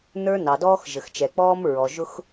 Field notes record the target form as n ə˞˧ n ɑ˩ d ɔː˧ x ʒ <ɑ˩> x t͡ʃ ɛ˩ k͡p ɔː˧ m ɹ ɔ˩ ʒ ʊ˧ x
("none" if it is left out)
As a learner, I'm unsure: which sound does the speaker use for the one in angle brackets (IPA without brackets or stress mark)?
ə˩